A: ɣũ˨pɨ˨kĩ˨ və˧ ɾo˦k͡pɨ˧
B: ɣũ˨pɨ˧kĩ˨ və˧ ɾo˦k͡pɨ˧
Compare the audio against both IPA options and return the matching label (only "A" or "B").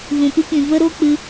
B